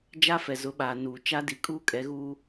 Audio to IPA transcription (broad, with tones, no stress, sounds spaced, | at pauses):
d͡ʒ a˦ f ɛ˨ z ʊ˨˦ ɓ aː˨ n uː˨ t͡ʃ a˦ d i˨ kʼ uː˦ kʼ ɛ˨˦ ɣ uː˦